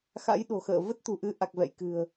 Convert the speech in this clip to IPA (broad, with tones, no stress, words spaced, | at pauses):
xa̰˧˥jɗo̤˨˩xə̰ː˧˨ və˦˥t̚t̪ṳ˨˩ʔɨ˨˦ ʔa˨˩k̚vɛ̰˧˨jkɨ̤˨˩ə̯